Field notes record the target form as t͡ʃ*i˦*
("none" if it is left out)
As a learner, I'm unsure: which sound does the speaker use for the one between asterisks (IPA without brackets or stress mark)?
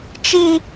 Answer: i˦